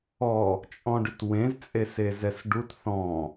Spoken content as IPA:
ɔ | t͡ʃʼ ɔ̃ ɖ ʏ t w ẽ z t͡sʼ e s e z ɛ s ɖ u t θ ɔ̃

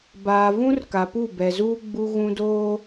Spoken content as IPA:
b aː˨ v ũ˦ r k a˨ p u˦˨ b ɛ˨ z uː˦ ɡ͡b u˦ ɣ ũ˦ d oː˦

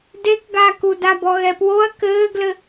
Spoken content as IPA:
d e k ɡ aː k u d a b ɔ ɣ ɛ p w o ɐ̯ k ɘː ɡ l ɘ

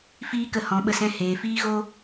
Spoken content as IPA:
f iː˦ k ə˧ h ɔ̃˨˦ ɓ ə˧ s ɛ̃˧ h eː˨ f iː˦ ɣ o˦

